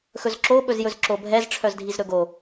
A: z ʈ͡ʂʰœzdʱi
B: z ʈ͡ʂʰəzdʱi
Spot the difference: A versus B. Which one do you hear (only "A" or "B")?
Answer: A